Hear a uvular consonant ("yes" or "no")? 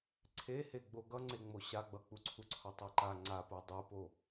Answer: no